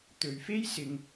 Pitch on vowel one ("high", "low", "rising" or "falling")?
low